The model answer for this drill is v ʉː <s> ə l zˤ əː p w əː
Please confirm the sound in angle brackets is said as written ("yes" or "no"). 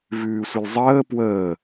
no